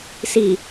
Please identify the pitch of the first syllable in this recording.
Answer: low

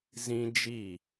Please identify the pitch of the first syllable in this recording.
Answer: high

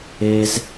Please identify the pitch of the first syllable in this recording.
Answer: high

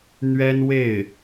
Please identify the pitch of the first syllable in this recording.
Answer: high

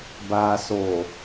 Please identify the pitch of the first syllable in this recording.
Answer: low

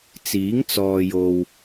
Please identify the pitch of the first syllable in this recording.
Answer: rising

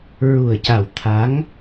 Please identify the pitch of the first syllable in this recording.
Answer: low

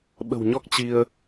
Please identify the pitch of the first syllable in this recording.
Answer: low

